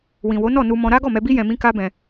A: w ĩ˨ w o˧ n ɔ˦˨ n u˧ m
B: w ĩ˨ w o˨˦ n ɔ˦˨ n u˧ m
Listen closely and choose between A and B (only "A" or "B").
B